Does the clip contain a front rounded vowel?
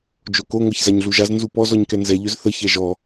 yes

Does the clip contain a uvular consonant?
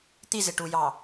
no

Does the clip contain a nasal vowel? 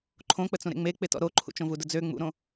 yes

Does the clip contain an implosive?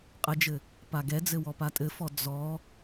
no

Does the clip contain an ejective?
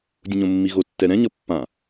no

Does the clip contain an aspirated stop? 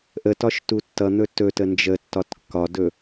no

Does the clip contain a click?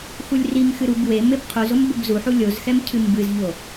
no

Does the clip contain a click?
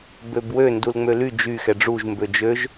no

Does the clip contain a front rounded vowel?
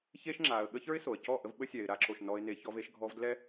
no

